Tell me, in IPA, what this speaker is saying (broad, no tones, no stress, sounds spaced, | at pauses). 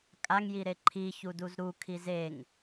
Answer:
kʼ a ŋ j i ɾ e ǃʰ i ç u d u z ɾ u kʰ i z e ŋ